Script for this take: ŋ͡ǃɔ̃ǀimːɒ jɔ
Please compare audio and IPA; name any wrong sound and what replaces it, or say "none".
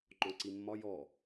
none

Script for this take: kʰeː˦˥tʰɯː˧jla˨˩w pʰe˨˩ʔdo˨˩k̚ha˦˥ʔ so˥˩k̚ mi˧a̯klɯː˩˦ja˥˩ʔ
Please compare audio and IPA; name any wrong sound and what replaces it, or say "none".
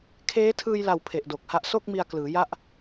none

